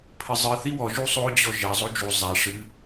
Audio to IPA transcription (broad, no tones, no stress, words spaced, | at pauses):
pʰɘzˤɨ θiwɔ ʒusˤo d͡ʑɔʒɐ zˤod͡ʒu zˤa ʂɨ